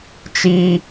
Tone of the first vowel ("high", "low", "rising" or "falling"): high